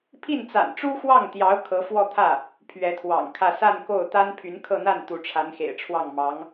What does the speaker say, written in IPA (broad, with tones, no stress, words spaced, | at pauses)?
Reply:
pʰi˥˩nt͡sa̰˨˩n ʈ͡ʂu˥xwɑ˥˩ŋt̪jɑ˧˥ʊ̯ kʰɤ˧˥fwɔ˥˧t̪ʰä˥˩ | pʰɥɛ˧˥t̪ʰwɑ̰˨˩ŋkʰä˥˧ sa˥˧nko˥˩ʊ̯ t̪a˥npʰy˧˥nkʰɤ˥˧n̪a˥˩n t̪u˧˥ʈ͡ʂʰa˧˥nxḛ˨˩ɪ̯ ʈ͡ʂʰwɑ˥˩ŋmɑ˧˥ŋ